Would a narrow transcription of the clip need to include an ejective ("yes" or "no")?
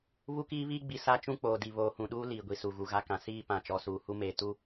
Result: no